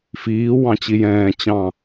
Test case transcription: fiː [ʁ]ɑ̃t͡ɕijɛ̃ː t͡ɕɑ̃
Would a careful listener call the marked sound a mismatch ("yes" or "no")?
yes